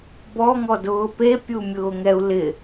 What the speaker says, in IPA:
bɔŋɔdʊː pepʲumʲʊːŋɛu̯ lɪ

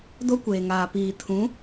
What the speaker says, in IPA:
do˦ kʷeː˨ŋaː˨ piː˨ tʰũ˨˦

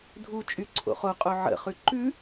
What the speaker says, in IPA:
dʱut͡ʃʼy ǀʰo̰χoqʼo ʕə̰χʉ ǃʉ

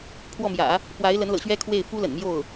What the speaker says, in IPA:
pʰwɔ˥˩mjä̰˨˩˦ | pwa˧˥ɪ̯lə˧˥nlɤ̰˨˩ɕɥɛ˥ kʰwe˥˩ɪ̯ fu˥lə̰˨˩nmjo˥˩ʊ̯

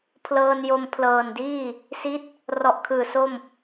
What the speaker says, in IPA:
pʰlɤː˧njo˧m pʰlɤː˨˩ndiː˥˩ | si˦˥t̚ | rɔ˨˩ʔkʰɯː˨˩ so˥˩m

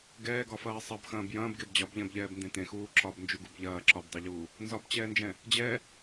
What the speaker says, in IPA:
ɡɛːɡɒfɐː sˤɐbxɐ̃ːb jɐ̃ːbɡeb d͡ʑɒbʎɛ̃bʎɛːbndẽ tẽxuː ǁɒbnd͡ʒuɡub ʎɐː ǁɒbdˤɛʎuː | nzɒbt͡ɕɛːnd͡ʒɛ̃ | d͡ʑɛ

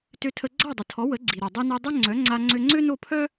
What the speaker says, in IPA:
tø˧tʰə˧ ɡ͡ǀa˥˩dˤə˩tʰɔ˩˥ wə˩˥ɡ͡ǀi˩ɾœ˩ dˤi˧no˧dˤø˥ ŋ͡ǀœ˩˥ŋ͡ǀa˧ ŋ͡ǀø˧ŋ͡ǀø˥no˥˩ pʰœ˥

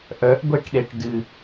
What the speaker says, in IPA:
ʔœʔɡʷeʈɗeʈ dɨ

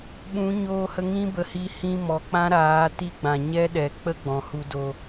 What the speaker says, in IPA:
ɓũ˨˦ ɲoː˧hə˧ŋĩ˦bə˨ hi˧hĩ˧ mɔ˨k͡pã˦ɾaː˨˦ ti˦ɡ͡bã˨ ɲɛ˦ɗɛ˨ k͡pə˦ɡ͡bɔ̃˨ hu˨do˨

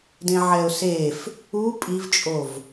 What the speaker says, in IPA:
dẽʕɛʊ̯sef | u pʼivt͡ʃʼov

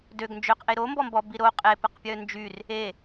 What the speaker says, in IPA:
døɡ nd͡ʒøqʔe ɾo mbɔmbɔ biɾo qʼepəqpʲœ nd͡ʒyr | e

